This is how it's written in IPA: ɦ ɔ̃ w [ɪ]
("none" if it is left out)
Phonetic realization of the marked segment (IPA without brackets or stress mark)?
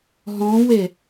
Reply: ɪ